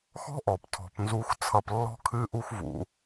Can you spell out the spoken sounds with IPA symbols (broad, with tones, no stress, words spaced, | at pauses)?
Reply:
xɔ̤˦ʔɔ˨p tʰɔ̤˧pnzu˦x t͡sʰʌ˧plːɔ̤˦ kʰɨ˦ʔu˦xvṵ˧